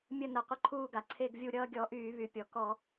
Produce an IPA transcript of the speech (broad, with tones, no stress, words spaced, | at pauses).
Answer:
mʲə˥˧nə˧˩˧ qʷə˥˧ǃʰuː˥˧ɡa˩ ǀʰe˥˧ɡvʲu˥˧ ɾʲʌː˥˧ɡʲɔ˧˩˧ʔyː˧˩˧βy˩ pʲɔ˩kɔ˧˩˧